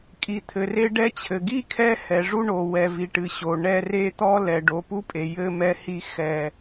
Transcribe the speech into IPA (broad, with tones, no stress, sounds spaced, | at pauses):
kʼ i˨ t̪ʰ ɘ˨ r e˦ ɖ ɛ˦ t͡ɕʰ ɘ˨ ɡ i˦ kʰ ɛ˦ h ɛ˨ ʐ u˦ ɳ o˨ w ɛ˨ v i˨ ʈ ɨ˨ ɕ o˨ ɳ ɛ˦ r e˦ t̪ ɔ˦ l ɛ˨ ɖ o˨ p u˦ pʼ e˨ j ɘ˦ m ɛ˦ h i˦ x ɛ˦˨